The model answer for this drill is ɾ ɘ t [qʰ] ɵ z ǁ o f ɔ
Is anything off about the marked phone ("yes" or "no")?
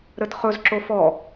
yes